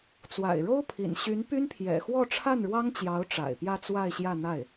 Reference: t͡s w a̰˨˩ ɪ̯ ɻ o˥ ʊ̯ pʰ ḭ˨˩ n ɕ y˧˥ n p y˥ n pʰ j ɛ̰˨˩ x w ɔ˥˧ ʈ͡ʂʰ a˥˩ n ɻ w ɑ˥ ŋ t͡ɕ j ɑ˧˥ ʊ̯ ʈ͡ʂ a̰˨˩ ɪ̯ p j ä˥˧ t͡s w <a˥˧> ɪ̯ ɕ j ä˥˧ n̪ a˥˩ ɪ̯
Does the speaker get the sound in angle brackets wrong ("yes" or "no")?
no